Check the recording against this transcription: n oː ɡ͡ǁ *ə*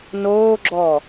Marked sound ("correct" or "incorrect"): incorrect